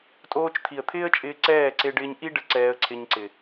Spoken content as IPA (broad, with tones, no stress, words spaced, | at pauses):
tʼoː˧t͡ʃt̪ʰi˨ə̯t̪ʰɪː˦ə̯t͡ʃʼɪː˧ ǀɛː˦˨ ǀe˧ɖɪː˧ɲʔi˦ɖə˧ ǀɛː˧ə̯ǀʰɪ˧ɲǀɪ˨